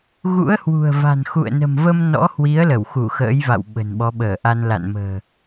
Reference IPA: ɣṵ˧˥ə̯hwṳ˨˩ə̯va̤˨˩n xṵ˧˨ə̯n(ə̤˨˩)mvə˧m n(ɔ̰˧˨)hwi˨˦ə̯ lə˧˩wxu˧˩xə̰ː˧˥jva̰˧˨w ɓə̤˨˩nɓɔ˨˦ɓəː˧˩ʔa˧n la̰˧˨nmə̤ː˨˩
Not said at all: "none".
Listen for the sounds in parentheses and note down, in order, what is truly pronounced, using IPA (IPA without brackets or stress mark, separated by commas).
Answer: ə̤˨˩, ɔ̰˧˥